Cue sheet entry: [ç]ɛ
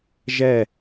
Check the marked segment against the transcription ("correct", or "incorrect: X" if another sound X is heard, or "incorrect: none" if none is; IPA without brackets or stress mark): incorrect: ʒ